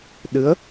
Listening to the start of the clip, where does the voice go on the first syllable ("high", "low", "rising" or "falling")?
rising